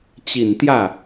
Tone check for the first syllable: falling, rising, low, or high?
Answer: low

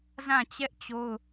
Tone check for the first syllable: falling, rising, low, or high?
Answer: falling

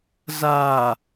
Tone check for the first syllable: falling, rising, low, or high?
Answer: low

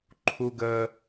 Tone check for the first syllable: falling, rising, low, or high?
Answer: high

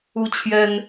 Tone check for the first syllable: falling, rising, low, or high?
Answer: high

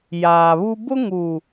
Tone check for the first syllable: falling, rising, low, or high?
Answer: low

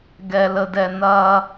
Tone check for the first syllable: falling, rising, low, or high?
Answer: low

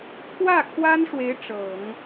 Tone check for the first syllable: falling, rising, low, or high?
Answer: falling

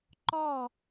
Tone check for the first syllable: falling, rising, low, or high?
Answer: falling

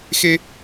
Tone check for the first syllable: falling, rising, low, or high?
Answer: high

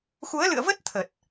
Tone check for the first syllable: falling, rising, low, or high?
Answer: rising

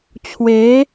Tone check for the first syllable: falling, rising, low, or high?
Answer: rising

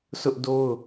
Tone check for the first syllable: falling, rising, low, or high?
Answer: high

